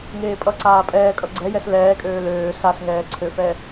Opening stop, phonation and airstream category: ejective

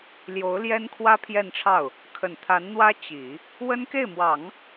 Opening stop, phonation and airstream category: aspirated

